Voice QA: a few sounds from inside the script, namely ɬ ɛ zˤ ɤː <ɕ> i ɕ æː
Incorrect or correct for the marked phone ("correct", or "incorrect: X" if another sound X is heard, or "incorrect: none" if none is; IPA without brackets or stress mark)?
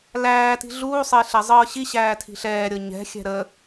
correct